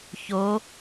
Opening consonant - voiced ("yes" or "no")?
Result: no